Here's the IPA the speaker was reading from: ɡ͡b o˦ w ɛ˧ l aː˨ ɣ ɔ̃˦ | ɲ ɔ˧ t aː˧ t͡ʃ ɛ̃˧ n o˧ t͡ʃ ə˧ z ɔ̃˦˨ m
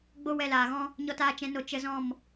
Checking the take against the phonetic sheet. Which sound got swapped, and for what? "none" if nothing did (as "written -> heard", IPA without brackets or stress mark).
none